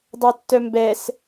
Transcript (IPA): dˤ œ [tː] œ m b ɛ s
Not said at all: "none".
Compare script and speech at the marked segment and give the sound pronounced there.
tː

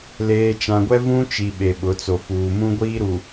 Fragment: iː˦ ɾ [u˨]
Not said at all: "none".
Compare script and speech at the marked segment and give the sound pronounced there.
u˨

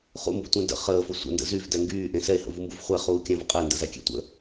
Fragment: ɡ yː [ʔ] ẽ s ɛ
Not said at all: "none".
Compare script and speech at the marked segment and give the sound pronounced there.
ʔ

